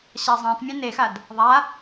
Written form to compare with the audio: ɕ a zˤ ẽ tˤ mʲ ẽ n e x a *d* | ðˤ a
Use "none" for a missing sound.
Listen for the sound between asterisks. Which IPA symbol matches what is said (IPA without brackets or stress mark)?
d